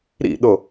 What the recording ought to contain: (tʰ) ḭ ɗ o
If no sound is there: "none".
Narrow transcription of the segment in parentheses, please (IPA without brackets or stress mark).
ɾ